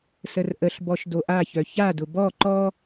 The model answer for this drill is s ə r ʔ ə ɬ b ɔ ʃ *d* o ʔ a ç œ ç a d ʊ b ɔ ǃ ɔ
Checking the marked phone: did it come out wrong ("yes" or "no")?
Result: no